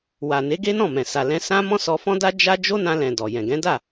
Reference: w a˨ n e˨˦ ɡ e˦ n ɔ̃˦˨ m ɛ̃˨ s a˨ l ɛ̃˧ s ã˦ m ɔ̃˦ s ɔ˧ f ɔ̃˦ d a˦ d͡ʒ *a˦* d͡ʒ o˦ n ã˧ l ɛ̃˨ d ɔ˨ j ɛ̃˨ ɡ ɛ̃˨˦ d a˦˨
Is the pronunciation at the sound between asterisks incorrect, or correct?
correct